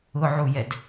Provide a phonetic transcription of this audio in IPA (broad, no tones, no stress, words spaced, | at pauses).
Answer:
ʊʕujɛd